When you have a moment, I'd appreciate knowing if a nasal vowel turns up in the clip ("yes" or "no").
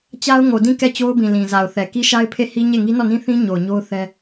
yes